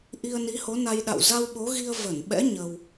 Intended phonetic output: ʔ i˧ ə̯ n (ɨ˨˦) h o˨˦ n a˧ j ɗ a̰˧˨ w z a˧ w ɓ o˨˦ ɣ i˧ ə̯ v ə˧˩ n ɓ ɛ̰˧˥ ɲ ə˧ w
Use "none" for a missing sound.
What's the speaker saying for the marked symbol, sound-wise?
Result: i˨˦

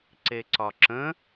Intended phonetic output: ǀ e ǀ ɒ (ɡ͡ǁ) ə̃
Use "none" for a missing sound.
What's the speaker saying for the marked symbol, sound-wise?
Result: ǁ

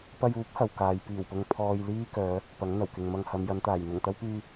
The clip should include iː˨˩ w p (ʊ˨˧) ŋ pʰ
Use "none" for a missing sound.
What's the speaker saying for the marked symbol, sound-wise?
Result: ʊ˨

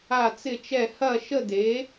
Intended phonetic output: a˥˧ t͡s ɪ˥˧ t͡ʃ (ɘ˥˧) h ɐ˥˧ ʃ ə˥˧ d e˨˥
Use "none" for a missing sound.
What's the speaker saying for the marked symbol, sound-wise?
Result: ɛ˥˧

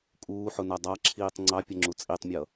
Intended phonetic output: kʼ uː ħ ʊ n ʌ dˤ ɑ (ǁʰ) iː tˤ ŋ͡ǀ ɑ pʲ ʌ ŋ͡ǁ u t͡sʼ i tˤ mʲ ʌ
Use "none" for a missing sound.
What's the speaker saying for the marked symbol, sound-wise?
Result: ǁʰ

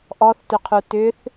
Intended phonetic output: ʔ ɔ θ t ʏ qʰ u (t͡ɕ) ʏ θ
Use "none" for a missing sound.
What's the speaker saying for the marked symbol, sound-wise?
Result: t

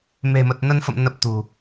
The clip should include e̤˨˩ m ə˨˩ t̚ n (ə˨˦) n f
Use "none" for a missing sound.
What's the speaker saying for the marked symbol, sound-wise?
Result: ə˧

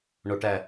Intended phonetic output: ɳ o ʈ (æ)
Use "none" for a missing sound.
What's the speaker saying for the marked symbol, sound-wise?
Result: æ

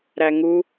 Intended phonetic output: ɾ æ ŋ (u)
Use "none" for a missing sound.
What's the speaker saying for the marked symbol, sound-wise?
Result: u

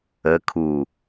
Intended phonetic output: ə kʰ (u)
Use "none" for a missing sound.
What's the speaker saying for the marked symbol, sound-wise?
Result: u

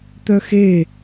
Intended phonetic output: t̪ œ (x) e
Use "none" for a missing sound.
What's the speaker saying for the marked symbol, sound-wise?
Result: x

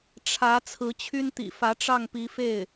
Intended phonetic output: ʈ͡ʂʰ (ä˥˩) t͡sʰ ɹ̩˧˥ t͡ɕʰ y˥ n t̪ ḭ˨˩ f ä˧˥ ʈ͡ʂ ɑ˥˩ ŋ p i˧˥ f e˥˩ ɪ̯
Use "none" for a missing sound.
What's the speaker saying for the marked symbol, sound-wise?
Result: ä˧˥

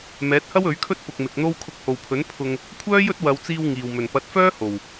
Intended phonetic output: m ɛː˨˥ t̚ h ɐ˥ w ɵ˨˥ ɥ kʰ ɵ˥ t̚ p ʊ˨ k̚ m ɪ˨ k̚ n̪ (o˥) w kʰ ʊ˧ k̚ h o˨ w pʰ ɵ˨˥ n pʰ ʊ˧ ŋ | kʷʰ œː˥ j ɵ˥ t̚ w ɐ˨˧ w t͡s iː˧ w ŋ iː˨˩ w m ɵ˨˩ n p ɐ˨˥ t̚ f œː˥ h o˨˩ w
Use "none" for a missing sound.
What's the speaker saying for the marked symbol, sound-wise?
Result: o˥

